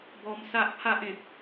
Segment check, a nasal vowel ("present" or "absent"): present